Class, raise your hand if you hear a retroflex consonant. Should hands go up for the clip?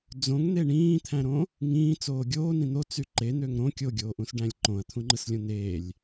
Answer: yes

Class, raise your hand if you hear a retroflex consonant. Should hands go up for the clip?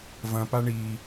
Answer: yes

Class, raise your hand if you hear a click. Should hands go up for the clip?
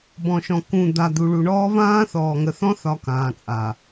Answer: no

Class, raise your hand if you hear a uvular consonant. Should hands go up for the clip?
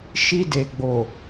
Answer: no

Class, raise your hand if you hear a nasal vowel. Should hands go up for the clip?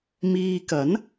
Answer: no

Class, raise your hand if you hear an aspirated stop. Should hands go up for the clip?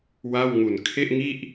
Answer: yes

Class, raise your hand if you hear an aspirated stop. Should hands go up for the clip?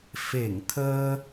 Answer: yes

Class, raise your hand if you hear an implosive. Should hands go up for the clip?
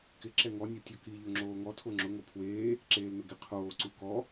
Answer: no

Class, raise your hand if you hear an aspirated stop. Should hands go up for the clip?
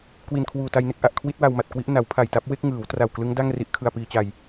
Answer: yes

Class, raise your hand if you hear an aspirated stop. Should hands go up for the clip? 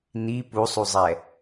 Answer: no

